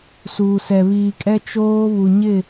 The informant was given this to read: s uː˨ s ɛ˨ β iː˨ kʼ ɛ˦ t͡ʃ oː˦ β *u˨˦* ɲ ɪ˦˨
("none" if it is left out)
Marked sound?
u˨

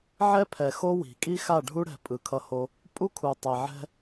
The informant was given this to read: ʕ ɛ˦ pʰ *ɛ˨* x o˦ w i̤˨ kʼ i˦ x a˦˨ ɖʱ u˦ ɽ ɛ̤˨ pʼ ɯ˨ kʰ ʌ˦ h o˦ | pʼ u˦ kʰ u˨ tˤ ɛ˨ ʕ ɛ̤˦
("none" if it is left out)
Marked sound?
ɛ˨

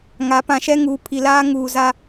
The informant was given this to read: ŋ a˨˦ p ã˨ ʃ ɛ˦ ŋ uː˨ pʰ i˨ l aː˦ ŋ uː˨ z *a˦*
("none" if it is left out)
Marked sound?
a˦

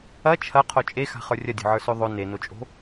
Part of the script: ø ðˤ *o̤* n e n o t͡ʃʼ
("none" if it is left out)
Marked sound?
o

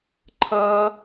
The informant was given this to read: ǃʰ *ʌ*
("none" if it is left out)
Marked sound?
ʌ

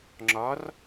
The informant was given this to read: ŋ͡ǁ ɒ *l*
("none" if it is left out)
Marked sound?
r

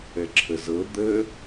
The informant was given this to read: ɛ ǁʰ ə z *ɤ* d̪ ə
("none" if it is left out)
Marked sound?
ɤ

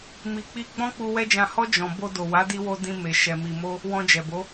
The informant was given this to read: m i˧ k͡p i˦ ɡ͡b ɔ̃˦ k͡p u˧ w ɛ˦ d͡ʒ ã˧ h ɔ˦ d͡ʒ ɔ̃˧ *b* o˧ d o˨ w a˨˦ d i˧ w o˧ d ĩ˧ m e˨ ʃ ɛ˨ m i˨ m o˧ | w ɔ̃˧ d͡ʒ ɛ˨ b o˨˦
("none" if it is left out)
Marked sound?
b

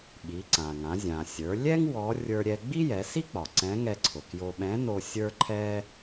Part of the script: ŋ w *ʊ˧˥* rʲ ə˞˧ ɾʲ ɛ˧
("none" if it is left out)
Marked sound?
ɔ˧˥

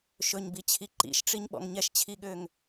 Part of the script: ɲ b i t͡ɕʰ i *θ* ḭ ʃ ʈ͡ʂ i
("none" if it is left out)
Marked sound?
ǃ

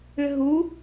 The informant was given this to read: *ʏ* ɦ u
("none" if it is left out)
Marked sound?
ʏ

